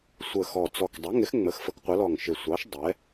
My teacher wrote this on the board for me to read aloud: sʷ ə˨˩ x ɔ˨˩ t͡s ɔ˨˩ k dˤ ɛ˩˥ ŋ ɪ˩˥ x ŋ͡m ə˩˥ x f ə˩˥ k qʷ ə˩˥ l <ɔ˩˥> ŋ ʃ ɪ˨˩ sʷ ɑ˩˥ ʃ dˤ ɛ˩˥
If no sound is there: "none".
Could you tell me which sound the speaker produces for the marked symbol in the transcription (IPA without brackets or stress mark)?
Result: ɔ˨˩